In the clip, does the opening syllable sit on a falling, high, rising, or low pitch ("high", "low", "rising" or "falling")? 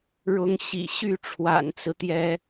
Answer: high